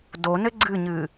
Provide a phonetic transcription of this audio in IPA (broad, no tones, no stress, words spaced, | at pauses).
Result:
donɘ ɡ͡ǀɨɲɨ